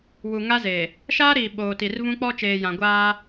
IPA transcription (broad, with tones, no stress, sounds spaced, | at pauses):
w u˨ ŋ a˦ z e˨ | ʃ aː˦ ɾ iː˨ ɓ oː˨ t i˨ r v ũ˦ k͡p ɔ˦ t͡ʃ eː˨ j ã˨ ɡʷ aː˦